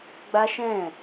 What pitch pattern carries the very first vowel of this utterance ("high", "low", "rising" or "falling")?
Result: high